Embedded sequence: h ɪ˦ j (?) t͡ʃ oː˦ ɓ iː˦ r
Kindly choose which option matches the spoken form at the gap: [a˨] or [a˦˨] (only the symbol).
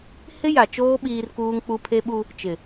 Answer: a˨